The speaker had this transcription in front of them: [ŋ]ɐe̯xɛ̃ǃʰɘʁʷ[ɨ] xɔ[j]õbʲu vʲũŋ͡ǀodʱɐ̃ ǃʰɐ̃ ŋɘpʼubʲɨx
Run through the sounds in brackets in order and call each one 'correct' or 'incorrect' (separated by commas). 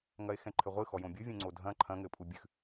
correct, correct, correct